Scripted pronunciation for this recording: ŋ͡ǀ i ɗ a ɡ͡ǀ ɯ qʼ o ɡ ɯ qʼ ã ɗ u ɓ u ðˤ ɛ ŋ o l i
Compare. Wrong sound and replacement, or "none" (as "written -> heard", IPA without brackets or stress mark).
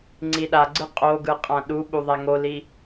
none